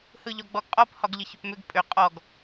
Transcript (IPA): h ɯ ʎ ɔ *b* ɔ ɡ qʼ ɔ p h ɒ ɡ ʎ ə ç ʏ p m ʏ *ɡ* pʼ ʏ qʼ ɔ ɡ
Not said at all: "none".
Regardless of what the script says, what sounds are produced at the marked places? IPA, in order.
ɡ͡b, ɡ

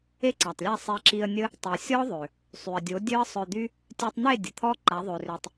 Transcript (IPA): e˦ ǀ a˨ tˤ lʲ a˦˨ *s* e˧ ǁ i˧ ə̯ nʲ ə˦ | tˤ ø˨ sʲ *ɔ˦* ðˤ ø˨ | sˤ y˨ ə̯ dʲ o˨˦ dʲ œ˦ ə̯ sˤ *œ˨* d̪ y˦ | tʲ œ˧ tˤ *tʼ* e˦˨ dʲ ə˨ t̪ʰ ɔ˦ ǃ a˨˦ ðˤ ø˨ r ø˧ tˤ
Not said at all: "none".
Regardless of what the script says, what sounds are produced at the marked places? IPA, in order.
sˤ, ɔ˦, œ˧, n̪

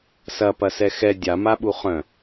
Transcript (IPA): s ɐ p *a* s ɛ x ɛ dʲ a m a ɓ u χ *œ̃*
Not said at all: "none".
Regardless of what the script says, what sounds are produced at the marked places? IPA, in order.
ɐ, œ̃

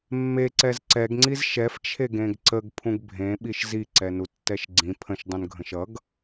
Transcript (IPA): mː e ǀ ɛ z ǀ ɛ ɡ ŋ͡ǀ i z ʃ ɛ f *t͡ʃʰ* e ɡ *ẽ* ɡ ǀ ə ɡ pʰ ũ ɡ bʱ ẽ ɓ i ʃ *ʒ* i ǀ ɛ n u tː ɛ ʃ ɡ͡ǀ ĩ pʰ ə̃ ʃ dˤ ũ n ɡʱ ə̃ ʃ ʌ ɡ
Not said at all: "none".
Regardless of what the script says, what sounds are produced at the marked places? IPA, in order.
t͡ʃʰ, ẽ, z

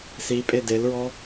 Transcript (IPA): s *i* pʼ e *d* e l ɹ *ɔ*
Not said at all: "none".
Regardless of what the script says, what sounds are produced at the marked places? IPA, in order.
i, d, ɔ

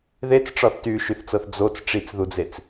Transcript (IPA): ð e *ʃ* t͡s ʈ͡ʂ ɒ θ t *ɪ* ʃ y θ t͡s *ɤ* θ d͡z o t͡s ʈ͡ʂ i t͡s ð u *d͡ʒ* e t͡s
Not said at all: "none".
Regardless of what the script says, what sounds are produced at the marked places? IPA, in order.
none, y, ɤ, d͡z

